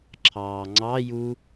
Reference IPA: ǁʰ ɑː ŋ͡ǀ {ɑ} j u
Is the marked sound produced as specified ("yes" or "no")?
yes